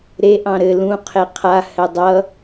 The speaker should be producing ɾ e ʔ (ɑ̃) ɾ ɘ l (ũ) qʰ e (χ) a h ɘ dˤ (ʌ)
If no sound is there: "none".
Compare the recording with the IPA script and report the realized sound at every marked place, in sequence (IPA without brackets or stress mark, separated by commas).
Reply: ɑ̃, ũ, qʰ, ʌ